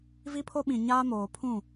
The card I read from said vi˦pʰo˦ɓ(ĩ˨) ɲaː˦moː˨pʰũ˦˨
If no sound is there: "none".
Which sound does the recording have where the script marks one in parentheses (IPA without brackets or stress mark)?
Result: ĩ˨